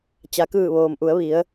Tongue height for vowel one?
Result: low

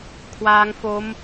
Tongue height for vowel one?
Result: low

